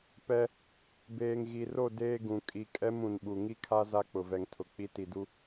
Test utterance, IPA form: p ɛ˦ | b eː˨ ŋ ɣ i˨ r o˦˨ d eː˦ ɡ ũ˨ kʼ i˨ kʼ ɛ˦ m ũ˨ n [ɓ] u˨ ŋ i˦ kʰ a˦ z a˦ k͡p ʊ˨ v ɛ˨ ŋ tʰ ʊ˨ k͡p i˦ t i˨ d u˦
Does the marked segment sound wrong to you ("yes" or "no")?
no